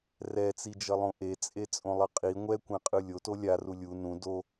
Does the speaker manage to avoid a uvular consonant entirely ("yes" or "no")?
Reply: no